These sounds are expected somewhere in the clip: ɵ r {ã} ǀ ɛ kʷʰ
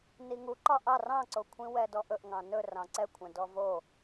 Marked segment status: incorrect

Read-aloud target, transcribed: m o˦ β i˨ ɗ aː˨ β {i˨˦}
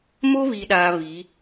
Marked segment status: correct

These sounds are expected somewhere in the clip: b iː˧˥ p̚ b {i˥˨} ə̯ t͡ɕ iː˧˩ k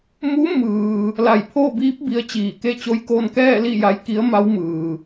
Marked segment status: incorrect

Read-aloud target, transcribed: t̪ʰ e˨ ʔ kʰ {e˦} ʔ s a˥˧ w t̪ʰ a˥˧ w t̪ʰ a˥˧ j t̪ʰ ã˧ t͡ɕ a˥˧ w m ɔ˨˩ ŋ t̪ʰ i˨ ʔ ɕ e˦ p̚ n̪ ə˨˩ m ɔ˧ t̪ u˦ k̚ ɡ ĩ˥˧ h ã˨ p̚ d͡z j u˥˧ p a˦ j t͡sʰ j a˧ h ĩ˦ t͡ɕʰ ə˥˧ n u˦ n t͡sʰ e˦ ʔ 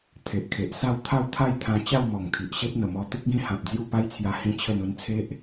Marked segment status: incorrect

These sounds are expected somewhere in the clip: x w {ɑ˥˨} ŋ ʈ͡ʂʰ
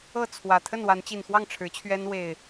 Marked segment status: correct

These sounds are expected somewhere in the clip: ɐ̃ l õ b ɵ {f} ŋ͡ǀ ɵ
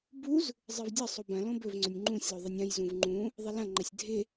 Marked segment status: incorrect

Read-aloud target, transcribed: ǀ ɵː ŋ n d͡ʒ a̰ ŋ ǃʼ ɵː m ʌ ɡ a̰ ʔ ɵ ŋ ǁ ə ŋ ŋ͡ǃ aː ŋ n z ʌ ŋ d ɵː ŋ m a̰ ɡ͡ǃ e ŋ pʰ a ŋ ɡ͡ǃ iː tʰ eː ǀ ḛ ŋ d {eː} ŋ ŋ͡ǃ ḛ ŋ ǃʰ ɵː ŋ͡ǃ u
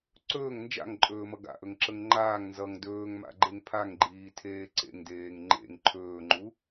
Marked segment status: correct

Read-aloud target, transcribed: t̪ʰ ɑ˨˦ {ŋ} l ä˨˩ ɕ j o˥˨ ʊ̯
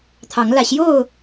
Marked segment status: correct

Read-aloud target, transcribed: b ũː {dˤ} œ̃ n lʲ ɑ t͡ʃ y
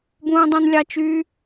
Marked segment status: correct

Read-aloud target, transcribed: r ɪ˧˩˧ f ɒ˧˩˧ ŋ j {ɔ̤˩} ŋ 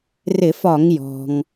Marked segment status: correct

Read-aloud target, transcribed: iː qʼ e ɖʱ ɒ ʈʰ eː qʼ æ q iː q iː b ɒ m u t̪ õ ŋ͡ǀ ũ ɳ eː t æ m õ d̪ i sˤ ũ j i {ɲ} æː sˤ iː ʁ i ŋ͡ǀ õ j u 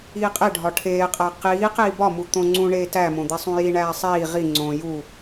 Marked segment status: incorrect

